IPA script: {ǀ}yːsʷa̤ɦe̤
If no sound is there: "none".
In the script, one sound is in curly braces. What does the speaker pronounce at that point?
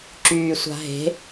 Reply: ǁ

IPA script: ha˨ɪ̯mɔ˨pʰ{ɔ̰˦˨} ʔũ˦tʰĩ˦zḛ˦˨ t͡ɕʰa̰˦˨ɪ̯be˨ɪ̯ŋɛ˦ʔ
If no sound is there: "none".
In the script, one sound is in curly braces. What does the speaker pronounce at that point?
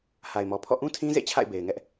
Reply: ɔ̰˦˨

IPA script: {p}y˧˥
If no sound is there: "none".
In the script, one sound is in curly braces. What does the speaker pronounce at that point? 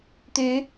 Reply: t̪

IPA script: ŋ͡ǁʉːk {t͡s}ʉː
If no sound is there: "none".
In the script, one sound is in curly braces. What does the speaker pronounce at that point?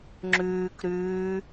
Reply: ɾ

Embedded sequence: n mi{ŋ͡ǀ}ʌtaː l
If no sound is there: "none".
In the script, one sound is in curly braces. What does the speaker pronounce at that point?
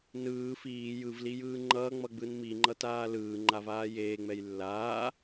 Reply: ŋ͡ǃ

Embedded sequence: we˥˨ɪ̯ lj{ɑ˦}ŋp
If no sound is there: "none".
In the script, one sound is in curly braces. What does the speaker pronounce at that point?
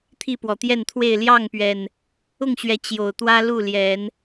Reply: ɑ˥˨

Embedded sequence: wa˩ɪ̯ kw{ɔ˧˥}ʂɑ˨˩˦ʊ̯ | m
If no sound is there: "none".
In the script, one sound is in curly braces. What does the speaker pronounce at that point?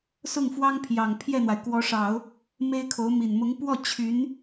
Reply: ɔ˧˥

